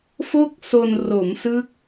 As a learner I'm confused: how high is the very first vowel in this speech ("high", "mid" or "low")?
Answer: mid